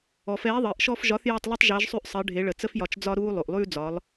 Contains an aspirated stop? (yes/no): no